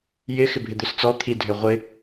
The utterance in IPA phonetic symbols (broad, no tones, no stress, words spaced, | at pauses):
jɪ xɪbʱɪd̪øst͡sɔ t̪ʰidʱø ʁʷɪ